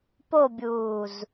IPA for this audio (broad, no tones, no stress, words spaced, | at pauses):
pobʲuːz